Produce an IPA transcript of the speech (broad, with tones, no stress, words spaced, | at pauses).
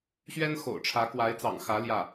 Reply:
ɕɥɛ˥nxo̰˨˩ʊ̯ʈ͡ʂʰä˧˥ kwa˧˥ɪ̯t͡sɑ̰˨˩ŋxä˧˥ ljä˥˩